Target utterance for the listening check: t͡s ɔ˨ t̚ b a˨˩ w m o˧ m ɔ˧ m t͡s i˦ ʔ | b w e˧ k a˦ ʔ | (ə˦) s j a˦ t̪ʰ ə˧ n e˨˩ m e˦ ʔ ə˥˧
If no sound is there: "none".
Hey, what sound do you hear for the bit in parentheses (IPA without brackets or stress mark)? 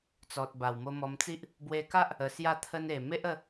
ə˧